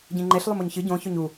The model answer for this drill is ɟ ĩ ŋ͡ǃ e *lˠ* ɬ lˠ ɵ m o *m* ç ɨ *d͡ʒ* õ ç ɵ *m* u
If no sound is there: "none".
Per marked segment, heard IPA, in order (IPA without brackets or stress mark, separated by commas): none, ɲ, ɟ, ɲ